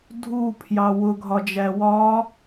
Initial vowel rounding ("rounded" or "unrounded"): rounded